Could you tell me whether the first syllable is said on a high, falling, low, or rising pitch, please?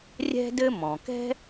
high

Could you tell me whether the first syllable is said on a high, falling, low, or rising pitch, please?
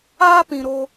high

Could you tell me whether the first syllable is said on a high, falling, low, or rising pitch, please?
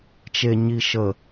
low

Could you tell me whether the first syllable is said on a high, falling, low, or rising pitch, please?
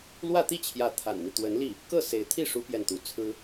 falling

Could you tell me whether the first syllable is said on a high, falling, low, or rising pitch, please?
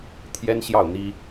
high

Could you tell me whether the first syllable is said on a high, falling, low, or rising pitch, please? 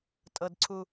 low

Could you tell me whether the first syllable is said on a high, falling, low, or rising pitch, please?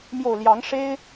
low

